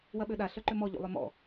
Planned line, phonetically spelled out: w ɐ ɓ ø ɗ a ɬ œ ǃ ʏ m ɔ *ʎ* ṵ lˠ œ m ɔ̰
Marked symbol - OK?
yes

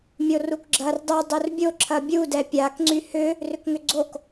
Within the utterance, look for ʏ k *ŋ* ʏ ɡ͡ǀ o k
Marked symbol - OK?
yes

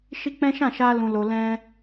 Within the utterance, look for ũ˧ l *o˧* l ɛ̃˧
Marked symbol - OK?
yes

